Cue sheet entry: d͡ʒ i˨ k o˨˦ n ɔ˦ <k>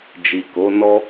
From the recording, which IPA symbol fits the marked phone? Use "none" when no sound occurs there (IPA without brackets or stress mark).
none